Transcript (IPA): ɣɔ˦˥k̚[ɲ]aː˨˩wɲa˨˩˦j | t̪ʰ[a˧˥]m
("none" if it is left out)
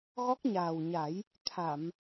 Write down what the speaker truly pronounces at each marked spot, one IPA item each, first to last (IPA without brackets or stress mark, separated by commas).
ɲ, a˨˩˨